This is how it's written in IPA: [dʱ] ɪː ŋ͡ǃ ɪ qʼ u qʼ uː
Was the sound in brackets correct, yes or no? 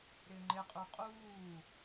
no